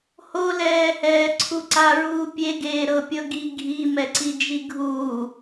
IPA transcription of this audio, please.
h o l ɛː h ɛː ǀʰ u ǀ a ɹ uː pʲ e ɡ eː ɾ ɤ pʲ ɤ ɡ i ɡʱ i m ɛ ǀ i d͡ʒ i ɡʱ uː

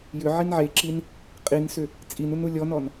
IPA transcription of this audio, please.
j ʏ ʕ i n ʕ e ǁ i n | qʼ i n s ʏ | t͡sʼ i n u n u lʲ ɔ n ɔ n

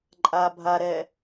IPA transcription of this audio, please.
ǃʼ a bʱ a ɾ ɛ

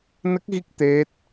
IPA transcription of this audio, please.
n ə˦˥ k̚ ɣ i˦˥ k̚ t̪ e˦˥ t̚

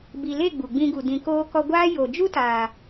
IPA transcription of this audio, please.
b i˨ l e˦˨ ɡ͡b u˨ ɡ͡b ĩ˧ ɡ u˨ d ĩ˨ k oː˧ k ɔ˧ ɡʷ aː˦ j o˨ d͡ʒ u˦ t aː˨

